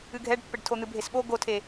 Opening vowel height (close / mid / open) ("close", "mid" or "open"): close